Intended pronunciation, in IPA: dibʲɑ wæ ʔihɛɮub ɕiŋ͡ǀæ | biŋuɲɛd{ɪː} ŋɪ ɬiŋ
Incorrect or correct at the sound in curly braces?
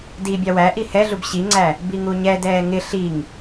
incorrect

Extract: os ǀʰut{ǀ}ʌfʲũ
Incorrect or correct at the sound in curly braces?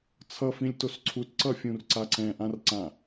correct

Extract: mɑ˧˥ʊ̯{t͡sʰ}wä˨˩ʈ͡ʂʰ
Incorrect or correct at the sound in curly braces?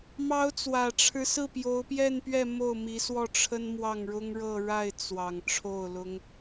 incorrect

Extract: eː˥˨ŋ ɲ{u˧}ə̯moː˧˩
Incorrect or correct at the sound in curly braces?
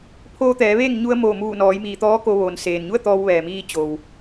correct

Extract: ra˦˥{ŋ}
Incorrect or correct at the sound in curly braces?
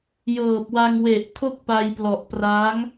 correct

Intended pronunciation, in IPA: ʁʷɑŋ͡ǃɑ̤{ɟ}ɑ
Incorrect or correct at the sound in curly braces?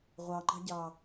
correct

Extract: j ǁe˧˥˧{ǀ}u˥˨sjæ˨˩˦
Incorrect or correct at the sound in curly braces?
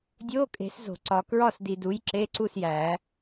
correct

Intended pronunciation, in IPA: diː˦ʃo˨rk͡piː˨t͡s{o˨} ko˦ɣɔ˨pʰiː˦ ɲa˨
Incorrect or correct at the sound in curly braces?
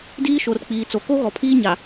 correct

